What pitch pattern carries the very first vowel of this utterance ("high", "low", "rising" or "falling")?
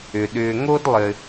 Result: low